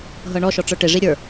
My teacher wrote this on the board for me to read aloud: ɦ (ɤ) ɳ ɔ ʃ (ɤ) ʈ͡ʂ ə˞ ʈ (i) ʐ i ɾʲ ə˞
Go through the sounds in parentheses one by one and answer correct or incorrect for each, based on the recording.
correct, incorrect: ɔ, incorrect: e

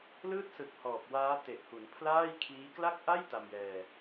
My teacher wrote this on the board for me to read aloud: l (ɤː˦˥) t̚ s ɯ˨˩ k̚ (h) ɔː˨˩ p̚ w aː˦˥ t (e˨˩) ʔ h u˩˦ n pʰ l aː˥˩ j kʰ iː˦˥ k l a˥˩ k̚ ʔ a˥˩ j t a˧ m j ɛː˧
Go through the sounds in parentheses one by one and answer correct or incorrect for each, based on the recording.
incorrect: ɯː˦˥, correct, correct

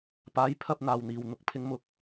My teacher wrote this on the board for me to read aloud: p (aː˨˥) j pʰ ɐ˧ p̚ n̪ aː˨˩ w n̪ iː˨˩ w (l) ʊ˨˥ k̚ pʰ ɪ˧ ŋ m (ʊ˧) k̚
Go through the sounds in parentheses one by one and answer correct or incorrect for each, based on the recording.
correct, incorrect: n̪, correct

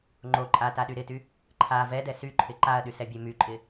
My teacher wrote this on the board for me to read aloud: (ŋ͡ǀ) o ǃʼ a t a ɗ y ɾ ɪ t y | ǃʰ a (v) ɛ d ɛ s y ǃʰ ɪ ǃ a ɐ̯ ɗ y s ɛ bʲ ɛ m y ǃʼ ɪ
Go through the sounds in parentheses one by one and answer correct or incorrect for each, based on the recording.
incorrect: ŋ͡ǃ, correct

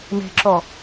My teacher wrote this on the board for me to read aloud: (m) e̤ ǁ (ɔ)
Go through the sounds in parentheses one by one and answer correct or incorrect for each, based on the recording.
correct, correct

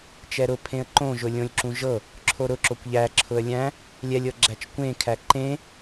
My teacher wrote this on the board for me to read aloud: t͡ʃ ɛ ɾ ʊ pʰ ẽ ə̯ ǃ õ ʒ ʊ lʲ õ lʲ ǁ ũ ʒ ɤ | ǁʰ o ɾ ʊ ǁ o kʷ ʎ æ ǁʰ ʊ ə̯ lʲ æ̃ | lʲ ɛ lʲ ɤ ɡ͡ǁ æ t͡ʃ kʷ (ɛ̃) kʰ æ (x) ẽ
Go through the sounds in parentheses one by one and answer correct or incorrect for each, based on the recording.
incorrect: ẽ, incorrect: ǃ

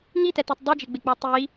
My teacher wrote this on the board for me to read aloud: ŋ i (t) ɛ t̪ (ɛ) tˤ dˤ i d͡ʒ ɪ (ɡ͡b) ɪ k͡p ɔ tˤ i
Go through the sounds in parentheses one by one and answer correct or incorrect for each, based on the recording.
correct, correct, correct

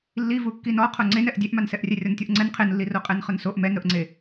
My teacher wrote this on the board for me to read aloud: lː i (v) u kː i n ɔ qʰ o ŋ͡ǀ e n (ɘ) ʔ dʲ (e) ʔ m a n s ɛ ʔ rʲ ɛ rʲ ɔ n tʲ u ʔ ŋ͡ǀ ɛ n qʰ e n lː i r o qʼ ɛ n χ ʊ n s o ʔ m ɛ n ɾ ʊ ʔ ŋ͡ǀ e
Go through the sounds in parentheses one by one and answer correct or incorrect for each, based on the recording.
correct, incorrect: ɛ, correct

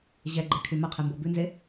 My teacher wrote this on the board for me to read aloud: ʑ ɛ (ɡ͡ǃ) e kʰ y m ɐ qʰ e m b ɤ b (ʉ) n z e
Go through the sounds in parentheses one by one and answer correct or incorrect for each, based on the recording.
correct, correct

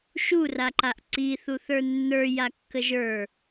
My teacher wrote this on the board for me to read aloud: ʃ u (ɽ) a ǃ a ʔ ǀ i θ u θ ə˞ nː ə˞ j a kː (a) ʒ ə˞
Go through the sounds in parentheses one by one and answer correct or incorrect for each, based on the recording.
incorrect: r, incorrect: ə

